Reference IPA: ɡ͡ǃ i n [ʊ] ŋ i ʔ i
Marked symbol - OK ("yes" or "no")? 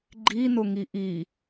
yes